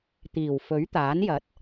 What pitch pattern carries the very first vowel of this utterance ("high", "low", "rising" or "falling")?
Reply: low